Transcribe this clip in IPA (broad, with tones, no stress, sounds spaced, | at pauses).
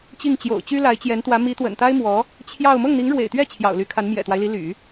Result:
t͡ɕ i˥˩ ŋ t͡ɕ j o̰˨˩ ʊ̯ t͡ɕ y˥ l a˧˥ ɪ̯ t͡ɕ j ɛ˧˥ n t̪ w ä˧˥ m i˧˥ t̪ w ə̰˨˩ n t̪ a˥ ɪ̯ m w ɔ˧˥ | t͡ɕʰ j ɑ˥˧ ʊ̯ m ɤ˥˩ ŋ n̪ i˧˥ ŋ ɻ w ḛ˨˩ ɪ̯ t̪ ɥ ɛ˥˩ t͡ɕʰ j ɑ̰˨˩ ʊ̯ l y˧˥ kʰ a˧˥ n m j ɛ̰˨˩ t̪ w a˦ ɪ̯ l i˧˥ l y̰˨˩˦